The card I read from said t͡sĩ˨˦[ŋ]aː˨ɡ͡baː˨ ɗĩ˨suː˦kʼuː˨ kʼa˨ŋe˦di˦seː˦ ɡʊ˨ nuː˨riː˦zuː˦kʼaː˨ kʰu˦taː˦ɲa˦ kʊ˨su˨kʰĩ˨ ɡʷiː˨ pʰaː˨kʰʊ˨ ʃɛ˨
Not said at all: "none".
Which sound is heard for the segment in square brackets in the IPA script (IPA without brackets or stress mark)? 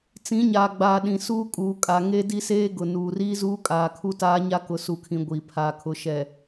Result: ɲ